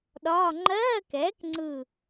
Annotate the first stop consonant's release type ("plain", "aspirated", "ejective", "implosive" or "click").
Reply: implosive